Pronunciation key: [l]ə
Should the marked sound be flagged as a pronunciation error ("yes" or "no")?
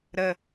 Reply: yes